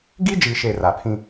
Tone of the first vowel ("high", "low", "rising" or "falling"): high